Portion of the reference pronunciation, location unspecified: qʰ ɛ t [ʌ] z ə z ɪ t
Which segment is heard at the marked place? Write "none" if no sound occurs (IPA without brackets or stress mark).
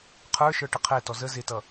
ɔ